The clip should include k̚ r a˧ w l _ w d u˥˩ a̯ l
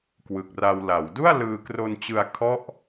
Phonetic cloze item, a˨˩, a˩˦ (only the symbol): a˩˦